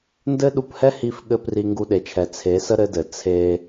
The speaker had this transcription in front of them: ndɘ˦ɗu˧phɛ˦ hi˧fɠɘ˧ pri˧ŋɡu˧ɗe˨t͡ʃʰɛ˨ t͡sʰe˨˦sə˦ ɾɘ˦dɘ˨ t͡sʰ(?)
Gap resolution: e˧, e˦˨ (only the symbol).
e˧